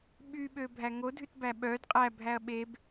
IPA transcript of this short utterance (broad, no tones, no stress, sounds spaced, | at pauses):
ɓ y ɓ ø bʱ æ ŋ o dʱ ʉ t b æ ɓ œ d qʼ æ bʱ æ ɐ̯ ɓ e b